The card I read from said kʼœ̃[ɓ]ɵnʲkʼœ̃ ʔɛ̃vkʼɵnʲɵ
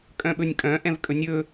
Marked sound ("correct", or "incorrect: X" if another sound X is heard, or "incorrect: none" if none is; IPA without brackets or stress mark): correct